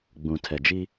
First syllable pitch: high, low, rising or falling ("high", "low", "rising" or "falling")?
low